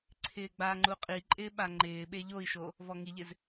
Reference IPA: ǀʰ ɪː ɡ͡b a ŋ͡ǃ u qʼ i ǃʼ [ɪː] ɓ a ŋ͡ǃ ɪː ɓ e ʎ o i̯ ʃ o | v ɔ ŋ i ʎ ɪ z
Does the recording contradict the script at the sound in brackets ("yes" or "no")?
no